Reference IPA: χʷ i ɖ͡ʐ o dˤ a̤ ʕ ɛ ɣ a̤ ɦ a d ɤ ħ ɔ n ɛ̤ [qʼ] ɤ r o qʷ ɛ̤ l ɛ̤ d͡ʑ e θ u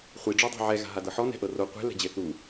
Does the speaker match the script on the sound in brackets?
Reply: no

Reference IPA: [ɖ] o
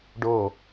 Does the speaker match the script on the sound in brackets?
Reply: yes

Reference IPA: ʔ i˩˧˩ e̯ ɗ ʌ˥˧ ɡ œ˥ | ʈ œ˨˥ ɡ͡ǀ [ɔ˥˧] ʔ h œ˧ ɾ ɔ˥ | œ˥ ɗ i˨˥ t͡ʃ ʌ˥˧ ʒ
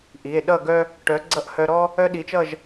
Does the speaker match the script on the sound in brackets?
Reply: no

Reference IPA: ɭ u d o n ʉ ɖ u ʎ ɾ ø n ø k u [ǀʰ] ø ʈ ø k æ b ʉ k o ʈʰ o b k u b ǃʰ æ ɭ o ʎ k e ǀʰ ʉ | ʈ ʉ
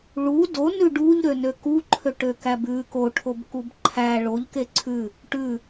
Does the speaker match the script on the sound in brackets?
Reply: no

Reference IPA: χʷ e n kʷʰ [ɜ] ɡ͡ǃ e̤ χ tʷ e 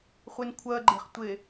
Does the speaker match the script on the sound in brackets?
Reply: yes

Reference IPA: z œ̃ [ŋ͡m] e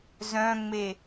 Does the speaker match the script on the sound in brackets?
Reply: yes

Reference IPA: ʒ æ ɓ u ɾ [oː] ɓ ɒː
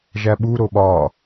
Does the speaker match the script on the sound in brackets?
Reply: no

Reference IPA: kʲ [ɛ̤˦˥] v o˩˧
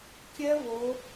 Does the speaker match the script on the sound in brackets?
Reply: no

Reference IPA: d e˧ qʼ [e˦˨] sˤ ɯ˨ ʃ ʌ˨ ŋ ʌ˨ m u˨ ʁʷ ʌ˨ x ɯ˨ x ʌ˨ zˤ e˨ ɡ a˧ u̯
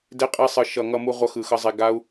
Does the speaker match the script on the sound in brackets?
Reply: no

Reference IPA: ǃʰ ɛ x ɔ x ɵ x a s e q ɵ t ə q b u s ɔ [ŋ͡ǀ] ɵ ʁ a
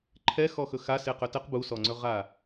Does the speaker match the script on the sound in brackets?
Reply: yes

